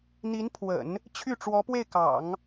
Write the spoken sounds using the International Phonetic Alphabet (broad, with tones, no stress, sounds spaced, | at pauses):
n̪ i˧˥ n pʰ w ə̰˨˩˦ n | t͡ɕʰ y˥˩ ʈ͡ʂ w ɔ˧˥ p w e˥˩ ɪ̯ k ɑ̰˨˩˦ ŋ